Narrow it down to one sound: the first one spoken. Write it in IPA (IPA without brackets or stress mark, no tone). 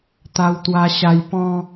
t̪